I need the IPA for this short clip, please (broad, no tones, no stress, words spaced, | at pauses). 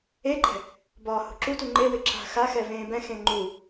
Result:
eǃɛ̤ | bɒːhṳǁutu ŋ͡ǃewɪ ǁa̤xaxɛ vẽːbɛ̃xẽ ŋ͡ǃu